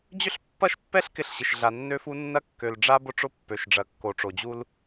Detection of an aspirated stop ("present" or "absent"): absent